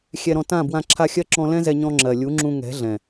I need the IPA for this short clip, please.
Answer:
xʲ ɛ˧ ɾ ɔ̃˧ t ã˦˨ b w ã˧ ǁʰ a˧ xʲ ɜ˦ ǁ ɔ̃˧ l ɛ̃˦ z ɛ˧ ɲ ɔ̃˧ ŋ͡ǁ ɜ˨ lʲ u˨˦ ŋ͡ǁ ũ˧ ŋ ɛ̤˨˦ ɮ ɛ̃˨

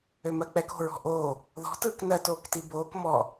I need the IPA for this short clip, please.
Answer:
ø m ɜ k͡p ɛ k o̤ ɹ ɔ̤ ʔ oː | ð ɔ̤ t ɯː k n ɜ t oː k t i b oː k m ɔ

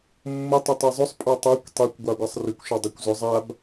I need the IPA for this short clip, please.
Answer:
mː ʊ tˤ ʊ tˤ e zˤ ʊ sˤ pʼ ɑ tˤ a kʷ tˤ ɛ kʷ ɡʷ ɑ ɡʷ a sˤ r ʏ kʷ ʃ a dˤ ɛ kʷ z ʊ zˤ a b

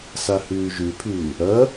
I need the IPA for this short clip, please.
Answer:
s a h ʉː ʒ ʉ pʰ ʉː | ɐ

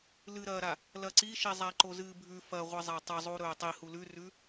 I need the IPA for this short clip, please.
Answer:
l ɨ ɾ ɐː ɾ a | l ɐ ǀ i ʃ i zˤ a ǃ o z ɨː bʱ ʉ f ɐ ʁʷ ɨ zˤ a tˤ ɐ zˤ u ɾ ɵː tˤ i h u l ʉ r ʉ

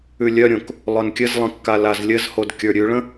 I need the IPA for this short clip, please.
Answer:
ʉ lʲ œ ɾʲ õ k | lˠ œ n kʲ ɘ z lˠ ə̃ kː a l a z lʲ ɘ z h o d kʲ ə˞ ɾʲ ʉ ɭ ə̃

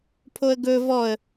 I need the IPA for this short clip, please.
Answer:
pʰ o ə̯ ɡ ɵ v ɔ ə̯

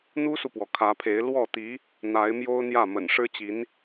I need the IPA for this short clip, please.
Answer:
n̪ u˥ s u˨ p w ɔ˩ kʰ ä˧˥ pʰ e˧˥ ɪ̯ l w ɔ˥˩ t̪ i˧˥ | n̪ a˧˥ ɪ̯ m j o˥ ʊ̯ n̪ j ä˥˩ m ə̰˨˩ n ʂ ɻ̩˥ t͡ɕ i˧˥ n

